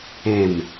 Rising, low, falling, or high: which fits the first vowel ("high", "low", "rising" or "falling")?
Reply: falling